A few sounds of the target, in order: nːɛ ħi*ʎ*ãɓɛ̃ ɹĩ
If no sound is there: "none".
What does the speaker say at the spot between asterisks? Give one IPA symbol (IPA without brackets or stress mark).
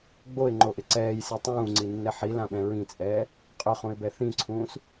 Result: l